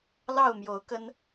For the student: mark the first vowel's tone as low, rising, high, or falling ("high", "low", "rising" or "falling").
falling